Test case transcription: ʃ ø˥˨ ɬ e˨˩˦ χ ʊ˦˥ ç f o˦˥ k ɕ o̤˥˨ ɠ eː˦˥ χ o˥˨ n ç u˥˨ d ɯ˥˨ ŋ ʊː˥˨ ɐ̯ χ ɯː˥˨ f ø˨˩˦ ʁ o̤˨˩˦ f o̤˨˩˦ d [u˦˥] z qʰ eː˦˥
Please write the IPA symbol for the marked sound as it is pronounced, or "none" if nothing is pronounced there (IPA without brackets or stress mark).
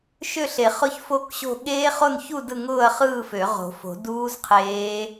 uː˦˥